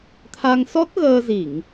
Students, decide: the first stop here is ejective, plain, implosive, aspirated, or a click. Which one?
aspirated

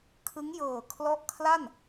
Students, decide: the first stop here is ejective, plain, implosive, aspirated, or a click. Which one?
aspirated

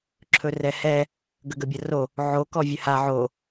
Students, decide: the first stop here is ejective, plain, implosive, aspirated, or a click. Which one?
click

